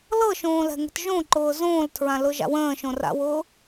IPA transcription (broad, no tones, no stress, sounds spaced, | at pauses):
l ɤ ʃ õː l ɛ̤ ŋ ə̤ t ʒ õ ǃ ʊː z õː l tʰ ɹ ã l ʊ ʒ a̰ w ə̃ː ʃ õ r a̰ w ʊː